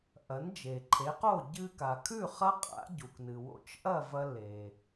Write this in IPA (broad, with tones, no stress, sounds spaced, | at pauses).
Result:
ʔ ɐ˩˥ n d͡ʒ e˩ ǃʰ e˩˥ q o˥˩ ɟ ɨ˧ k a˩ kʰ ʉ˥˩ χ ɐ˥ qʼ a̰˩˥ ɟ u˩ k n ɨ˩ w o̰˧ t͡ʃ ʔ ɐ˥˩ v ɐ˧ l e˩